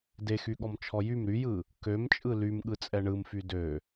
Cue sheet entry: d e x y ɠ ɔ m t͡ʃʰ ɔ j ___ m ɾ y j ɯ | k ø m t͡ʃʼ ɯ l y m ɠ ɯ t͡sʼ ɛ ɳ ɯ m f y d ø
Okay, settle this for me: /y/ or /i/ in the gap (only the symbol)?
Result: y